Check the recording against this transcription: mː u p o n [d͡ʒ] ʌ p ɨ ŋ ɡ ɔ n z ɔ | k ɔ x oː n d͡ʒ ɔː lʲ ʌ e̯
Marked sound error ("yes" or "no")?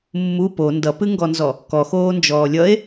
yes